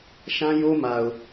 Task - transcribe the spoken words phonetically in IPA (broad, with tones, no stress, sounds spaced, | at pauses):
ʃ ã˦ j o˦ m a˨ ʊ̯